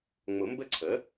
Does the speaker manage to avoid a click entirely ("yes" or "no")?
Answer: no